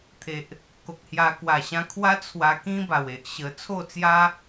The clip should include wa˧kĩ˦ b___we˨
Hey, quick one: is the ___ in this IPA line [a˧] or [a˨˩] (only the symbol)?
a˨˩